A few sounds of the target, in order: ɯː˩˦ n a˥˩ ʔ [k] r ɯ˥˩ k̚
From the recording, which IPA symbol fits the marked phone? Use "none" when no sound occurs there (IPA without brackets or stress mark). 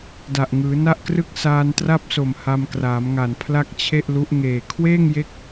k